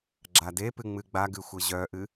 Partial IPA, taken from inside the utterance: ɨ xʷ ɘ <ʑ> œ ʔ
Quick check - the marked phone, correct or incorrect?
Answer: correct